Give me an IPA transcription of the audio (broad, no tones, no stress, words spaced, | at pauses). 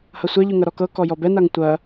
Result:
hɐsʷɛʎʉ ŋɐɾɔkɤ kɔjɔbɛnaŋ tʷɐ